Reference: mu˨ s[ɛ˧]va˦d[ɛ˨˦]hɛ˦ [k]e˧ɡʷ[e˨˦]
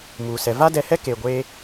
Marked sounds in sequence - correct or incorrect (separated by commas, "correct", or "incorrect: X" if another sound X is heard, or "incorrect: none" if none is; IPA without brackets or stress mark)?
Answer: incorrect: ɛ˨, incorrect: ɛ˧, correct, incorrect: e˦